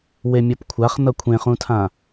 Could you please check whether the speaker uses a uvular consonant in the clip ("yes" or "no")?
yes